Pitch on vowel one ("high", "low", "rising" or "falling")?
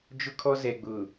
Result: high